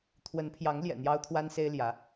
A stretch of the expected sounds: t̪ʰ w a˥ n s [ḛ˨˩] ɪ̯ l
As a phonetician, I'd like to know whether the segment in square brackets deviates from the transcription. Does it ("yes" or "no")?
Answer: yes